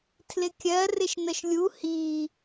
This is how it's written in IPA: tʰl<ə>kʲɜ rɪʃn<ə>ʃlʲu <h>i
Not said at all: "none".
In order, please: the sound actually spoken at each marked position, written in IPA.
ɪ, ə, h

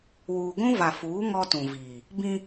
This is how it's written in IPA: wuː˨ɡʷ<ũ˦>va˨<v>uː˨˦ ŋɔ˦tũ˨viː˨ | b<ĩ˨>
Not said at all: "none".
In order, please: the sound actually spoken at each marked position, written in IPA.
ũ˦, f, ĩ˦

